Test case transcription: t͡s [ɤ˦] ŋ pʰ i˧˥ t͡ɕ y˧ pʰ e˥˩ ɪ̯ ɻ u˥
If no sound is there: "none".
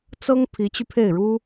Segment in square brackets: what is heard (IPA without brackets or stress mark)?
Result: ɤ˥